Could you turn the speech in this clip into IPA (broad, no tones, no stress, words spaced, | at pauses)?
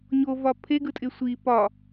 ɲovɒ pʰeɡɯtʼɪ sʷi pɒ